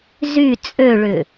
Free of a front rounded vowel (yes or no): no